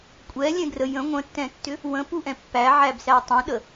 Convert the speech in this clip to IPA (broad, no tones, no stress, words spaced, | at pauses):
kʷʼɛlʲɛ̃ɡrə jə̃ ŋʷə̃tːɛ̃tːʏ | wə̃puʔɛ̃ pːæʕæbsæ tˤə̃ɗə